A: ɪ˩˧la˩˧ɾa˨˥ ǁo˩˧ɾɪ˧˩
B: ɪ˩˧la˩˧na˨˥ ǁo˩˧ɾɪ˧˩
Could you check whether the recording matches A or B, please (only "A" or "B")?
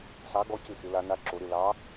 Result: B